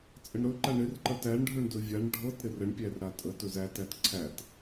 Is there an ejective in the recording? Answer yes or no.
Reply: yes